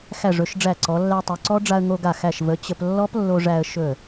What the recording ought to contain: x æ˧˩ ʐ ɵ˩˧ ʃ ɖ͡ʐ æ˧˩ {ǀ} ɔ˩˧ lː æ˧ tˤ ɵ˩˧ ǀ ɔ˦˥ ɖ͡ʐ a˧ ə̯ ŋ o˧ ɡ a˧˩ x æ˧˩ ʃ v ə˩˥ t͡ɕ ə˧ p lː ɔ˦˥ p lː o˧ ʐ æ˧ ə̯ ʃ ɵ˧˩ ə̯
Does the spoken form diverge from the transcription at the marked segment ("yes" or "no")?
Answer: no